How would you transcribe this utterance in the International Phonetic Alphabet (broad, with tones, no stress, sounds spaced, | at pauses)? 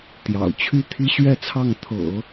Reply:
t̪ j ɑ̰˨˩ ʊ̯ t͡ɕʰ y˥˩ t̪ʰ i˥ ɕ ɥ ɛ˥˧ t͡sʰ ɑ˥˩ ŋ t̪ʰ ɤ̰˨˩˦